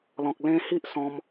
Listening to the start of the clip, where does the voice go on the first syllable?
low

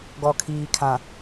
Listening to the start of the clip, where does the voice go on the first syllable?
low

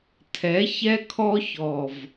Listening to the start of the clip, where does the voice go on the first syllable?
rising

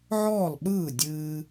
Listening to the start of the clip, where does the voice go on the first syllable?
falling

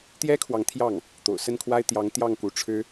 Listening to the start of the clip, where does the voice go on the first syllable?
high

